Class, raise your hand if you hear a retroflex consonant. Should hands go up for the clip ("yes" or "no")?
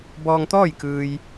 no